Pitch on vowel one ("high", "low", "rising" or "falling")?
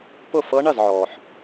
falling